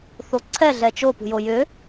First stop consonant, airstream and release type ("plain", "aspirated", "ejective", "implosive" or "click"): click